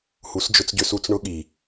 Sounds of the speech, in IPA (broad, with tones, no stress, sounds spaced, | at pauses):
h u˨˦ s d͡ʒ ʊ˧ t͡s ɟ ʏ˧ s u˧ t͡s ɳ ʊ˦ ɠ i˨